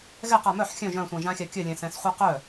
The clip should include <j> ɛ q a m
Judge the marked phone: incorrect: ɣ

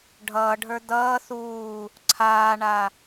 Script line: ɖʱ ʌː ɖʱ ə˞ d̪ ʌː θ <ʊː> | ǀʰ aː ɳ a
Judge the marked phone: incorrect: uː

